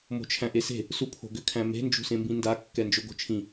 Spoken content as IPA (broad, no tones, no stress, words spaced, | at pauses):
mo̤t͡ʃʰæ̃ʔese̤ | supʰo̤ɡʏ kʰæ̃me̤ nd͡ʒṳsẽmbĩnda kːɛnd͡ʒoɡo̤t͡ʃʰĩ